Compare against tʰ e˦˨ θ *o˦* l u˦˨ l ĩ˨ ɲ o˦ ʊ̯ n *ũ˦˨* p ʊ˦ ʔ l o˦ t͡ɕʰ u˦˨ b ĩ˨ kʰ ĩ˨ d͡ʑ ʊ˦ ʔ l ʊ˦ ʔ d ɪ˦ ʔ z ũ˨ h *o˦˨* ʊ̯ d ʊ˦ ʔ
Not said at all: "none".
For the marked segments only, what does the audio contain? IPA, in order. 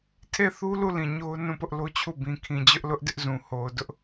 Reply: u˦, ũ˦˨, o˨

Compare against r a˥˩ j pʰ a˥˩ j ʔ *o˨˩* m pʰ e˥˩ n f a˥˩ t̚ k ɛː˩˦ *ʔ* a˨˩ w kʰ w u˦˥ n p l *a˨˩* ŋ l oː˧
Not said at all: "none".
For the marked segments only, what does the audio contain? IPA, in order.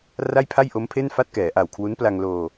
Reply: o˦˥, ʔ, a˧

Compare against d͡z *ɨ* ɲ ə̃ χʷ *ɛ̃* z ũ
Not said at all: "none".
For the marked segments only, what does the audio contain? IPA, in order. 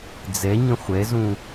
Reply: ɛ, ɛ

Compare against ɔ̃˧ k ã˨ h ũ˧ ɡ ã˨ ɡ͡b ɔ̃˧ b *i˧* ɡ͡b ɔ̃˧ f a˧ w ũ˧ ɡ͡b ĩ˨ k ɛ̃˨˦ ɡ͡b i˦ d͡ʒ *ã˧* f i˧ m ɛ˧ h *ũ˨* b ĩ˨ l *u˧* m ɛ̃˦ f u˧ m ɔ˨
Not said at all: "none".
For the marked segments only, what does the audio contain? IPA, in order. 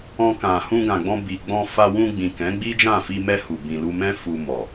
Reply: i˨, ã˦˨, u˨, u˧

